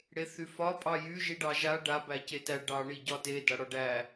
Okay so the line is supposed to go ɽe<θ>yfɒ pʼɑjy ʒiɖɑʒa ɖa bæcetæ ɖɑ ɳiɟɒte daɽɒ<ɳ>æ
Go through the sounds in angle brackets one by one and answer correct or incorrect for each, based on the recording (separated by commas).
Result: correct, incorrect